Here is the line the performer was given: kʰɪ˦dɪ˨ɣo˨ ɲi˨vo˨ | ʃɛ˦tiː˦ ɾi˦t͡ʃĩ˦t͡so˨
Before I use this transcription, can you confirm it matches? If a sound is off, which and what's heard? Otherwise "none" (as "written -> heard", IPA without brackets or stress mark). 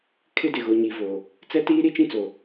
ʃ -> t͡s